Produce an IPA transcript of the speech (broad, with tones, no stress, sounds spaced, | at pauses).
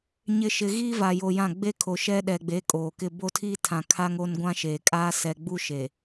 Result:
ɲ ɪ˨ ʃ ɪ˨ ɣ iː˦ v a˨ j o˨ j ã˦˨ ɡ͡b e˦ kʰ o˨ ʃ ɛ˦ ɗ ɛ˨ ɡ͡b e˨˦ kʼ oː˨ k ɪ˦ b o˦ tʰ iː˦ tʰ ã˨ kʰ a˦ ŋ o˦ n ɡʷ ã˦ ʃ eː˨ kʼ aː˦ s ɛ˨ ɡ͡b u˦ ʃ e˨